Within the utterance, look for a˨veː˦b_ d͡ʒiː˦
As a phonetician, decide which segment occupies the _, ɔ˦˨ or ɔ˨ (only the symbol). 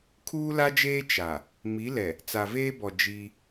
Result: ɔ˨